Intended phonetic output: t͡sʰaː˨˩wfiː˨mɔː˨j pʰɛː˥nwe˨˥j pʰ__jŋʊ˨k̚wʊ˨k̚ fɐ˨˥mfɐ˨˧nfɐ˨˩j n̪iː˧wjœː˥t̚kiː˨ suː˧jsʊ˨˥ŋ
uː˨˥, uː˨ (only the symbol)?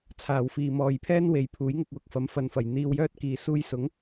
uː˨˥